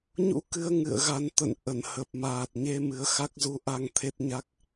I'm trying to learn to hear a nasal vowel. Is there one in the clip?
no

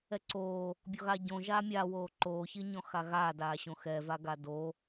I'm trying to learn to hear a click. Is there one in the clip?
yes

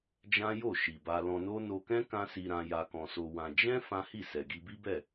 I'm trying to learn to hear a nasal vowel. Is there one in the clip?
yes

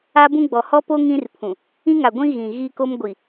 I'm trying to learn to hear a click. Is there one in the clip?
no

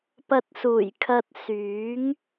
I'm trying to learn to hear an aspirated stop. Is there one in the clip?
yes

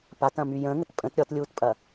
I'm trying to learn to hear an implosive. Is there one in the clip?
no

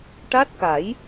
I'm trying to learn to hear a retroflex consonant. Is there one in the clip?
yes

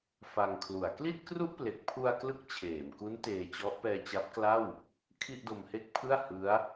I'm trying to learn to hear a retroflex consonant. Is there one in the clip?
no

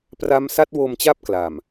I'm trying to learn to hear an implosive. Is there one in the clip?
no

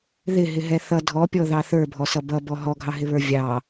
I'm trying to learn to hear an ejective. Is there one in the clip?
no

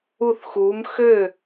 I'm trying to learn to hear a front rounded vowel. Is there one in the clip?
yes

